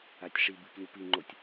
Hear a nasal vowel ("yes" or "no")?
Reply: no